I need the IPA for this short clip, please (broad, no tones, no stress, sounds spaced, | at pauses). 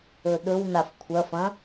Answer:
ɵ ɗ ɵ w n a f kʷʰ ɐ f ɐ̃